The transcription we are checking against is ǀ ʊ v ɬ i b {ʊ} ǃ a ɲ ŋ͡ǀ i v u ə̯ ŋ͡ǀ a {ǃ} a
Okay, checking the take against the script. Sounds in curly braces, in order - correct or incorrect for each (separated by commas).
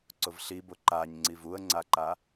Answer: correct, correct